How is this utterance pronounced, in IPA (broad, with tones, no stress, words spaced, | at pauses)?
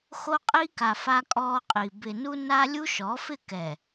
xo˦qʼi˦ka˨ fa˦kʼɔː˦qʼi˨ bɪ˨nu˦na˦ lʲu˦ʃɔ˨˦fɪ˦˨ kɛ˨